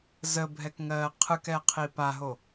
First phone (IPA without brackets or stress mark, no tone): z